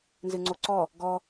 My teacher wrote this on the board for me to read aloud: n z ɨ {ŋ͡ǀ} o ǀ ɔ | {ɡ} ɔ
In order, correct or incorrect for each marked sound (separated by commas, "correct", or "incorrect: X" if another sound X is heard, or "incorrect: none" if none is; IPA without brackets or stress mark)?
correct, correct